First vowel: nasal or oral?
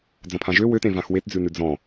nasal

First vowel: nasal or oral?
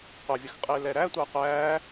oral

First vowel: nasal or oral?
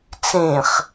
nasal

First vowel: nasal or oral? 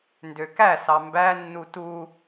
oral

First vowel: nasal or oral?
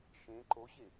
nasal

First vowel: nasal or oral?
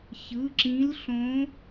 oral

